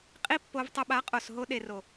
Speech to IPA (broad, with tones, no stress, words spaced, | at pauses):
qʼi˦pːo˧v tˤə˧ɓa˨˦qʼo˨sɦo˧ ɗe˨ro˨